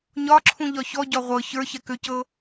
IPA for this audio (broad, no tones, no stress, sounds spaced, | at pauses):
ɲ ɒ ǁʰ ũ ʎ ɒ ç ɔ ɟ ɒ ʁʷ ɤ ç ə˞ ç ɛ k ʏ c ɤ